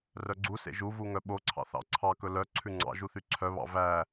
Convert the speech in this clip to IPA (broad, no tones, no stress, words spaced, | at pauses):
rœɡ͡ǀusḛ ʒuvu ŋœɓoǀʰɑ̰ θɑ̰ǀʰɑkɵ lœ ǀʰʉŋ͡ǀɑ̰ʒu θyǀʰœβɑ̰ væ